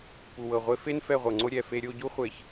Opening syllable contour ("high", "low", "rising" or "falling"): low